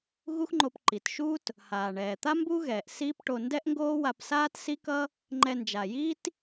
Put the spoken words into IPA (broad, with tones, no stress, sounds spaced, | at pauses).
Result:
ɣ u˥ x ŋ͡ǃ o˧ p ǃ i˩ t ʃ uː˥ t | h aː˩ ɳ ɛː˩ t̪ a˥ m b u˥ ɣ ɛː˩ ʔ s iː˥ p ʈ o˧ n d ɛ˥ ʔ ŋ ɡ oː˥ w a˧ p s aː˥ t s i˥ k ʌ˥ | ŋ͡ǃ ɛ˧ n d͡ʒ a˩ j iː˥ t